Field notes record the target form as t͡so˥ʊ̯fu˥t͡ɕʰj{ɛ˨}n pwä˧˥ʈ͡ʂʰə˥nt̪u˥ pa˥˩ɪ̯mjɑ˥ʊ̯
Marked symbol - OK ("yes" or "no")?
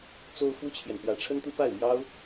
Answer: yes